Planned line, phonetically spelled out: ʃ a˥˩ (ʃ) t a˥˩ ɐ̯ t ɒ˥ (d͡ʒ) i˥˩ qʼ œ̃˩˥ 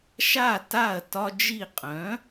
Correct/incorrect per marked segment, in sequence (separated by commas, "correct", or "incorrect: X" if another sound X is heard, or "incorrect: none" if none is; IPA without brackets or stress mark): incorrect: none, correct